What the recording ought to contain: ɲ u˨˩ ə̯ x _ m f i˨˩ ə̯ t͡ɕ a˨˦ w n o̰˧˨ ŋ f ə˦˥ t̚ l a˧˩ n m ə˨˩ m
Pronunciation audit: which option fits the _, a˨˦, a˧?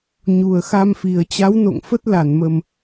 a˧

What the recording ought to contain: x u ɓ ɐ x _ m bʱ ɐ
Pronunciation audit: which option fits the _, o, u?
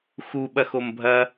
o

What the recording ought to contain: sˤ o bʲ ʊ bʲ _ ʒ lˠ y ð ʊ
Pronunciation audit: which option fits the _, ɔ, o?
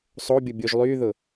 o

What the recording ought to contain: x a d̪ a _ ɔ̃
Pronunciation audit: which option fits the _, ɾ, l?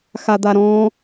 ɾ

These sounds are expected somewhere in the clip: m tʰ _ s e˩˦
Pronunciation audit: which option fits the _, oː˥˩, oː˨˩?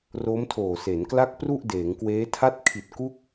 oː˨˩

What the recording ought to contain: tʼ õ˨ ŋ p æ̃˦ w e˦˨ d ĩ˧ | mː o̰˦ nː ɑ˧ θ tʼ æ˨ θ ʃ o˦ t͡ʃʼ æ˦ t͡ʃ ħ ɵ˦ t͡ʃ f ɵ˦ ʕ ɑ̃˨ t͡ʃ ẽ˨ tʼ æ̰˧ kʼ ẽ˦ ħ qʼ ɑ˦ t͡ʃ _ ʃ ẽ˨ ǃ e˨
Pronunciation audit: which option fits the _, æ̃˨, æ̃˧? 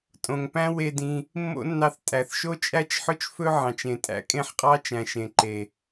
æ̃˨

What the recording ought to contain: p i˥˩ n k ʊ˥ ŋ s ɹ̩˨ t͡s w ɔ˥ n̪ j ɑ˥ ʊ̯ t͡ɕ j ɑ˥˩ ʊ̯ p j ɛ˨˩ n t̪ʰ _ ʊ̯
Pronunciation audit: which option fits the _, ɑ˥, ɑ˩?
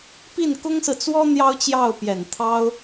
ɑ˥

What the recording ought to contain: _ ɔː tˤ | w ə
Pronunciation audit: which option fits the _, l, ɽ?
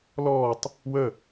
l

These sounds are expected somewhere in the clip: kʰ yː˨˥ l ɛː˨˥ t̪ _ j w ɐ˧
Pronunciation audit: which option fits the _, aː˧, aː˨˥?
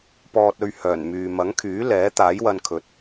aː˨˥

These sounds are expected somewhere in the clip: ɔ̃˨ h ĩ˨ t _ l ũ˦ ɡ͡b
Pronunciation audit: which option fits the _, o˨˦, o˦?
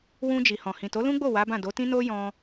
o˨˦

